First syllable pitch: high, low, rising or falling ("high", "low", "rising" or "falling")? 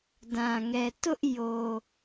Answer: low